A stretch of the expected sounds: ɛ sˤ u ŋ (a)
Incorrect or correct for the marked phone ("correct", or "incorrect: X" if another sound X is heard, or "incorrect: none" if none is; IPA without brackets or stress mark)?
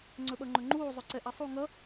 incorrect: ʌ